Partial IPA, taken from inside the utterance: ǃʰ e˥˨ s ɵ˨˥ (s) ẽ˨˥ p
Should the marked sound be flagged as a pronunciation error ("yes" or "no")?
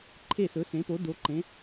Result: no